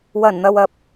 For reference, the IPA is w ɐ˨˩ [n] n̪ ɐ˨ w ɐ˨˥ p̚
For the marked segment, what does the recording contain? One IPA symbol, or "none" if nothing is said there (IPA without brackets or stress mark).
n